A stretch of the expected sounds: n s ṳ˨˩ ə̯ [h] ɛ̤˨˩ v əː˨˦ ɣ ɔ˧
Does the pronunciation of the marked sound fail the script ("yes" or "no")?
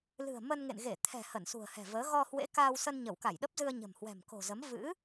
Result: no